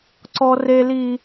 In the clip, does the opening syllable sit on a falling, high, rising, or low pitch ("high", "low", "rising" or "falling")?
high